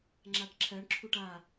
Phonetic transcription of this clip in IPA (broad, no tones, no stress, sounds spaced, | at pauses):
ŋ͡ǁ a ʈ ǁʰ ɜ ɳ ǁʰ u ʈ a